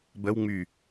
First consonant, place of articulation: labial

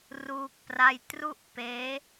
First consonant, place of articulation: alveolar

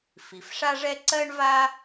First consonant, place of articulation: labial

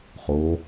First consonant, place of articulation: uvular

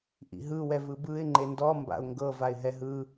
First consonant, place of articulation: glottal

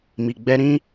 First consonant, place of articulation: labial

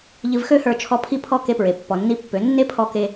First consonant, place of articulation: palatal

